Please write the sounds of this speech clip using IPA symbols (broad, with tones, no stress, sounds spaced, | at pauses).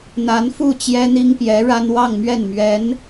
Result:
n̪ a˧˥ n f u˥˩ t͡ɕ j ɛ˥ n̪ i˥ ŋ p j ɛ˧˥ ɻ a˥ n w ɑ˥˧ ŋ m ɥ ɛ˥˩ n m ɥ ɛ˧˥ n